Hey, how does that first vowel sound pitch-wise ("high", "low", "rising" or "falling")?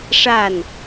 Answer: falling